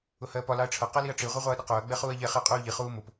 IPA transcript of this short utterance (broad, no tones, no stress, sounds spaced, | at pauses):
ʊ h ɜː p ɒ l ɑ ɐ̯ ʈ͡ʂʰ ʌ q ɛ l i ɐ̯ ʈ͡ʂ i ʁʷ ɛ ʁʷ ɑ ɐ̯ ɗ ə q ʊː ɐ̯ ɡ͡b ɛ χ uː ɐ̯ ʎ ɛ χ ɪ ɐ̯ qʼ uː ʎ i χ uː m ʊ p